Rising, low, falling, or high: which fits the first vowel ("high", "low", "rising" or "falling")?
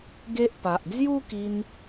high